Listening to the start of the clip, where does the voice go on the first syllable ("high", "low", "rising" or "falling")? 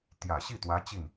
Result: low